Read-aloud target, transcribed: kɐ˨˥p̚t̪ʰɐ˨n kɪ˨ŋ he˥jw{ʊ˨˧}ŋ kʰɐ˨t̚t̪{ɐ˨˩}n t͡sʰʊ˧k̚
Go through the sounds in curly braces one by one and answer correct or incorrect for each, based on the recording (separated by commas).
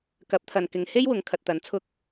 correct, incorrect